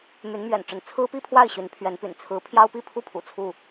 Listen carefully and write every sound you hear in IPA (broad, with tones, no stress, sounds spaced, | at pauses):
m y˨˦ n m ɥ ɛ̰˨˩ n ʈ͡ʂ ə˨˦ n t͡sʰ ɹ̩˦ p i˥˨ pʰ w a˥˨ ɪ̯ ɕ y˨˦ n pʰ ɥ ɛ˨˦ n p y̰˨˩ n t͡sʰ ɹ̩˨˦ pʰ j ɑ˦ ʊ̯ p i˥˨ pʰ u˥˨ pʰ ṵ˨˩ t͡sʰ u˥˨